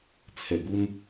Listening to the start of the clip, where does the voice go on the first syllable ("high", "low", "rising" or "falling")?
low